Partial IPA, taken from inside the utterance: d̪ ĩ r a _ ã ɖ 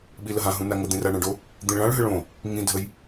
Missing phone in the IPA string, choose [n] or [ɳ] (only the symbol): ɳ